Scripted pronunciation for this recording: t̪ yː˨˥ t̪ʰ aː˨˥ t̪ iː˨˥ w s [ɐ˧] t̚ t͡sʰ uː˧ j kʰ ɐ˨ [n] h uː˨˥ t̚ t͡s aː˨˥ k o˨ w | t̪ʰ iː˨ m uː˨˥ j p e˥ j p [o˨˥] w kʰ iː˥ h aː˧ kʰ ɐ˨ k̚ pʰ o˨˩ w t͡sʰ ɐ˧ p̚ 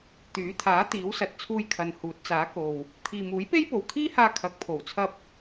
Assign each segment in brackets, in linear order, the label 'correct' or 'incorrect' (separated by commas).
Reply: incorrect, correct, incorrect